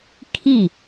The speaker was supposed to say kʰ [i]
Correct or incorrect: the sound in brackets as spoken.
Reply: correct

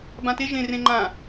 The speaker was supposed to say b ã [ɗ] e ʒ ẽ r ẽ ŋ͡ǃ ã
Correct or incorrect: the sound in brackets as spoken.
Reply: incorrect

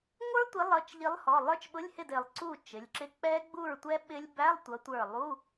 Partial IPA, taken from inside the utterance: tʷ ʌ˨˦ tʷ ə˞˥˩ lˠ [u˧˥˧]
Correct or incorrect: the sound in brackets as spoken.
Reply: correct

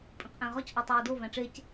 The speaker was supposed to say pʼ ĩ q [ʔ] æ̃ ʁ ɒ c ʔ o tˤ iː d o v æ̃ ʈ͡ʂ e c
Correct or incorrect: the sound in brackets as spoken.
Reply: correct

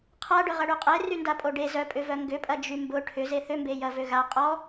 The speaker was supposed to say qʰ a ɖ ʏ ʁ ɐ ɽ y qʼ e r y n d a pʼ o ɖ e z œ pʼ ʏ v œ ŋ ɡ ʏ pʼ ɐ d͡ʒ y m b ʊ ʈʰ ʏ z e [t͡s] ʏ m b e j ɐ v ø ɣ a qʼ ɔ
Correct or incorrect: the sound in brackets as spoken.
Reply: incorrect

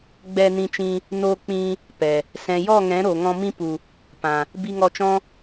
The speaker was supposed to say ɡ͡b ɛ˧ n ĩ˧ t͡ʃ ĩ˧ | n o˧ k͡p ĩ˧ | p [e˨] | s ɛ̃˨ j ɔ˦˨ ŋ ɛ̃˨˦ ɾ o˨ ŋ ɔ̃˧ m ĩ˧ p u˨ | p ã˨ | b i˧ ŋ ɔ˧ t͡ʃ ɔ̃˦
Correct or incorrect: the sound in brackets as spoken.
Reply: incorrect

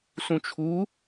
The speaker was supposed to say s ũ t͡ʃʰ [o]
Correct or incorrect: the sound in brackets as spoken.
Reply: incorrect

